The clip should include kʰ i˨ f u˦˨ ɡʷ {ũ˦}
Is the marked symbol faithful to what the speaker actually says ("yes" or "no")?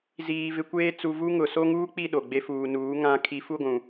no